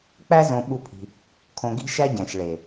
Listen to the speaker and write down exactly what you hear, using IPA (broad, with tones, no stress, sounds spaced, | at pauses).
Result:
k͡p æ˦ z õ˧ ɓ u˦ pʰ i̤˧ | kʰ õ˧ ɡ i̤˦ ʃ æ˦ ɟ æ̃˨ ʃ ɭ e˨